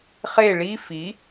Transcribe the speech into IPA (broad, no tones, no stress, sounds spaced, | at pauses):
χ e ɭ i f i